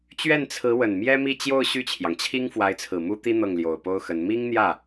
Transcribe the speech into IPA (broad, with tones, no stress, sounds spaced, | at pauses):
t͡ɕ ɥ ɛ˥˩ n t͡sʰ ɹ̩˧˥ w ə˨˩ n m j ɛ˥ m i˥˧ t͡ɕ j o˥˧ ʊ̯ ɕ y˥˩ t͡ɕʰ j ɑ˩ ŋ t͡ɕʰ i˥ ŋ f w a˧˥ ɪ̯ t͡sʰ ɹ̩˨˩ m u˥ t̪ i˥ n̪ ɤ˥˩ ŋ l j o˨˩ ʊ̯ p o˥ ʊ̯ x ə˧˥ n m i˥ ŋ n̪ j ä˥˩